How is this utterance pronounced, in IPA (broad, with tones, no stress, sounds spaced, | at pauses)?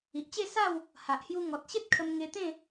i˨ ʔ t͡ɕ e˥˧ s a˥˧ w | h a˨ ʔ h j u˧ ŋ ɔ˨ t̚ ɕ e˦ t̚ kʰ ə˧ m ŋ e˧ t̪ ẽ˥˧